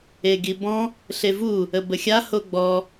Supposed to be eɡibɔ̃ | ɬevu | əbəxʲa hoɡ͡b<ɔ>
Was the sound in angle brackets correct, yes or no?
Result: yes